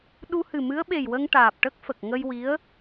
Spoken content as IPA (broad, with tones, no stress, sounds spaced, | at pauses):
ɗ u˧ h ɨ˨˩ m ɨ˧˥ ə̯ ɓ e˨˩ j w ə˧ ŋ ʈ aː˨˩ p̚ ʈ ə˦˥ k̚ f ə˨˩ k̚ ŋ ə˧ j w i˧˥ ə̯